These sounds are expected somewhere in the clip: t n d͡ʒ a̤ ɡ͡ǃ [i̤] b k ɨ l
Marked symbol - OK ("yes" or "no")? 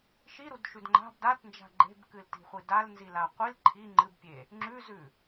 no